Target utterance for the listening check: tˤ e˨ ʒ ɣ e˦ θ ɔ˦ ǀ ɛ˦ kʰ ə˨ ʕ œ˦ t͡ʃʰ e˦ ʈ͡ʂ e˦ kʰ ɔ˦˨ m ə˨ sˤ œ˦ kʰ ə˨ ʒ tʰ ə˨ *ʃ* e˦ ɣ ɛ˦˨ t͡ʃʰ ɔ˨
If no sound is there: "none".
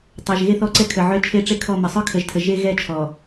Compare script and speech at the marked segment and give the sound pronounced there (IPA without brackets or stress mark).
ʒ